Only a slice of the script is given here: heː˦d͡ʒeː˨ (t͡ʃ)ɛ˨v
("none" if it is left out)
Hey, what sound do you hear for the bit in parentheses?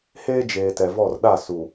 t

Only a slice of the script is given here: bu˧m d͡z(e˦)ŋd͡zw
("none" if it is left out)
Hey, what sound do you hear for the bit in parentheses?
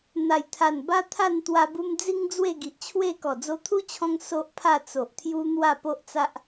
i˦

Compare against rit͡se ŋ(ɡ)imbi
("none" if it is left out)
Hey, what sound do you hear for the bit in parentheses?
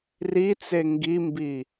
ɡ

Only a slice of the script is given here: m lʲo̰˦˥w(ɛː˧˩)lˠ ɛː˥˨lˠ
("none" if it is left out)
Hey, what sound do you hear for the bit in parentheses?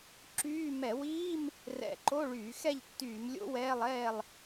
ɛː˧˥˧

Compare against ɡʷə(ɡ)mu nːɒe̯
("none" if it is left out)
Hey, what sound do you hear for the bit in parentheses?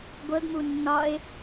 ɡ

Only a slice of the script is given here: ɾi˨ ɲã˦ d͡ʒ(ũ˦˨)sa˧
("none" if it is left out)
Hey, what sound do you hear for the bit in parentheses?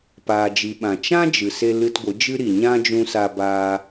ũ˧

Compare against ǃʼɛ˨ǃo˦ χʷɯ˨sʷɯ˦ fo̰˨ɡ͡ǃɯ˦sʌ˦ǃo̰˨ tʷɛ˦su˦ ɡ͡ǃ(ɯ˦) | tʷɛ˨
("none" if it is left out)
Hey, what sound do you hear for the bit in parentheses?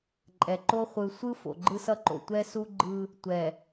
ɯ˦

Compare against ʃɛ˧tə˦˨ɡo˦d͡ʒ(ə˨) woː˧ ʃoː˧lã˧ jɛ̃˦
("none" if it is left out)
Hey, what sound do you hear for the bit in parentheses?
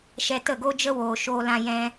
ə˦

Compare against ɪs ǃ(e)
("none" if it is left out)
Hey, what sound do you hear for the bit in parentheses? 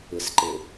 e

